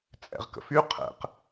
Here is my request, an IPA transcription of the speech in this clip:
t͡sʼ ɛ̰ ʁ k ə̰ f y qʰ ɛ̰ q

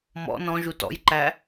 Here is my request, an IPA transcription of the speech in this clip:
m ɔ̰ n ɔ̃ ʒ u t ɔ̰ j ǃ æ

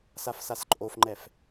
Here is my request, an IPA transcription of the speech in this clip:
s a f s a s ǃʼ o f ŋ͡ǃ ɛ f

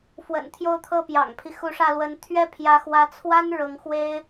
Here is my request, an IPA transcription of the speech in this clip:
f w ə̰˨˩ n t̪ʰ j o˥˧ ʊ̯ t̪ʰ ɤ˥˩ p j ɑ̰˨˩ ŋ pʰ i˦ x u˧˥ ʂ ä˥˩ l w ə˧˥ n t̪ʰ ɥ ɛ˥ pʰ j ä˧˥ x w ä˧˥ t͡sʰ w a˥ n ɻ ɤ˧˥ ŋ x w e˥ ɪ̯

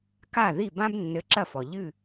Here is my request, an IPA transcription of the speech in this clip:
k a˥˩ ð i˥˩ b ã˥ b nː ɘ˨˥ ǁ ɐ˥˩ f ɔ˩ ʎ ɨ˧˩

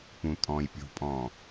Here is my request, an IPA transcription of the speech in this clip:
p ũ tʼ ɔ̃ː j pʲ o̤ pʼ ɔ̃ː

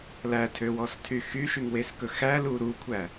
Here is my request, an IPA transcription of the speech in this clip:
l æ tʰ ø w ɔ s tʰ y x y ʃ y ŋ w e s k ɵ x æ l u ɾ u kʷʰ æ

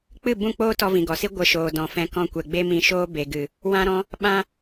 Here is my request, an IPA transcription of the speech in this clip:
k͡p ɨ˦˨ b ũ˦˨ k͡p oː˦ t ɔ˧ v ĩ˨ ɡ ɔ˨ s i˦ ɡʷ ə˨˦ ʃ oː˨ d ɔ̃˨ f ɛ̃˧ k ɔ̃˧ kʷ ɛ˨ ɡ͡b e˦ m ĩ˧ ʃ oː˦ b e˨ ɡ ɨ˨ | w ã˦ ɾ ɔ̃˦ | ɓ ã˧

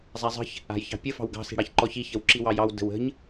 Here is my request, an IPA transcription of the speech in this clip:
zˤ a zˤ ə̤ ç | a̤ j ç ɑ̤ pʲ ə f ɑ̤ w ɡ ɑ̤ s i̤ ɽ ɑ ç ǃ ɔ ç i ç ə w ǁ i w ɑ j ɑ w d ə̤ w ə̤ ɲ

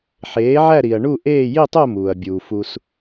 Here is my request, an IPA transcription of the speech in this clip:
ħ eː˨˥ ʕ æ˥˧ ɾ i˨ ɐ̯ ɳ u˥˧ ʔ eː˥˧ j i˥˧ tˤ o˥˧ m uː˨ ɐ̯ bʲ uː˨ f u˨ s

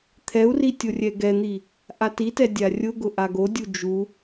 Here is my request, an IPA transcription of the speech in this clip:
t̪ʰ ɛ u̯ r i tʲ o rʲ ɛ ɡ ɛ n̪ i | ʔ a t i t ɛ dʲ a rʲ ʊ ɡ ʊ ʔ a ɡ o dʲ u d͡ʒ u

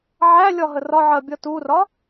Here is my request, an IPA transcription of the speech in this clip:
ʕ æ lʲ ɒ ɦ ə r ɒ ʕ ɜ bʲ ʌ t u r ɒ

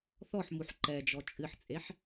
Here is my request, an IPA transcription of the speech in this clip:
θ ɔ ħ m u ħ ǃ ɛ d͡ʒ ɔ t͡ʃʼ ɨ ħ t͡sʼ e ħ

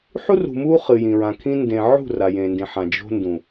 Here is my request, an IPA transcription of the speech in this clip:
ħ u˦ r ṳ˨ m u˦ χ ɨ˨ j ĩ˨ ɹ ã˨ kʰ ĩ˦ n d ẽ˨ ʕ ṳ˦˨ r a˨ j ẽ˨ n d ĩ˨ ħ ã˨ d͡ʒ o̤˦ n d ũ˨

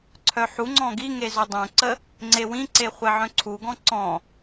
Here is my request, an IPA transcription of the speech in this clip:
ǀʰ œ ħ u ŋ͡ǀ ɔ̃ ɡ i ŋ e z o dˤ œ̃ ǀ ə | ŋ͡ǀ e w ĩ ǀ e χʷ ɛ ʕ œ̃ ǀʰ u ɡ ɔ̃ ǀ ɔ̃

